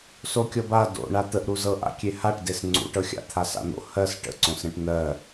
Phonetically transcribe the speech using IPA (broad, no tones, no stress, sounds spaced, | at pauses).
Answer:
s o kʲ ɤ b a d o̰ ɳ a t̪ ə ʔ ɾ u z ɤ ʔ a̰ kʲ e h a ʈ d e s ŋ͡ǀ ṵ ʈ ɤ xʲ a̰ t̪ʰ a s a̰ n̪ o̰ h ɜ s ʈ ə̰ ǀ õ s ɾ ẽ ʈ n̪ ɜ